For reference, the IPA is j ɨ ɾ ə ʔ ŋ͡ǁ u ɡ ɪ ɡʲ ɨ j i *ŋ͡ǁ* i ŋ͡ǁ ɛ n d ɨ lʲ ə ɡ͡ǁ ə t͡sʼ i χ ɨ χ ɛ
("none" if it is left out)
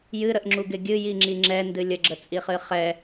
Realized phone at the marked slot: ŋ͡ǁ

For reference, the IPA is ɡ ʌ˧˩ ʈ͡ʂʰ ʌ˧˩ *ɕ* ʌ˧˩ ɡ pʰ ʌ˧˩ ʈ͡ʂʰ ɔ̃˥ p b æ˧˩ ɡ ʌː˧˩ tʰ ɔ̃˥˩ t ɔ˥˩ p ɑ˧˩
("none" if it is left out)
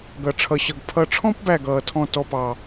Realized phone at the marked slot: ɕ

